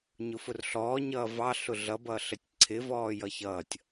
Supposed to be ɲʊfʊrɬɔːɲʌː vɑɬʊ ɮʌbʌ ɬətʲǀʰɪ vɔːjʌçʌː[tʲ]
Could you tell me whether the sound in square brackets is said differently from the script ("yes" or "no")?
no